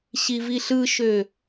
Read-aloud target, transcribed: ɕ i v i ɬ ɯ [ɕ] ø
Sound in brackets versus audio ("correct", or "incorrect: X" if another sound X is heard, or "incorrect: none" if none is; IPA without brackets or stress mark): incorrect: ʃ